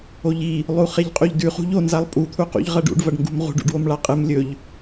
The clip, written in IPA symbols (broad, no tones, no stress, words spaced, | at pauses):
oʎi | lˠuχeʎqʼuʎdʉ χṳʎo nzalˠpʼu t̪ʰuqṵʎʁɐɖṵɖ vɐɖŋɡṳmʁṳɖ ṵɖwomɭaqʼɨm lʲɵʎ